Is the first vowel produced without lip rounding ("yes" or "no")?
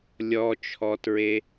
no